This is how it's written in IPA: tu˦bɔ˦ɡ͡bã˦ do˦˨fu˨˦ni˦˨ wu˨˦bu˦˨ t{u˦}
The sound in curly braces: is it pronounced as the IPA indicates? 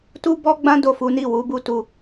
no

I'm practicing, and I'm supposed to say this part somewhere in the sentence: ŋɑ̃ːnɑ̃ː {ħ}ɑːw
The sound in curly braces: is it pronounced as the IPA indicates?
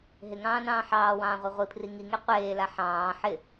yes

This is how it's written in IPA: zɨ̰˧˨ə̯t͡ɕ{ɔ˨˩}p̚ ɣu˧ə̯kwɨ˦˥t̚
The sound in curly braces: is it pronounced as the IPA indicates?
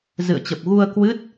no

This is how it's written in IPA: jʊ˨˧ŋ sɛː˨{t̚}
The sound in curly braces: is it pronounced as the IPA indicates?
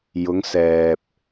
no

